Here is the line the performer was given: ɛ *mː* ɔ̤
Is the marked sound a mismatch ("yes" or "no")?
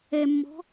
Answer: no